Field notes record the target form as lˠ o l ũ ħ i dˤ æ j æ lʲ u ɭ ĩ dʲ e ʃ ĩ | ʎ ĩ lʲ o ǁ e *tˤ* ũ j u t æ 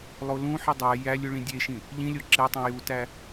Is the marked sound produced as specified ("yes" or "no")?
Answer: yes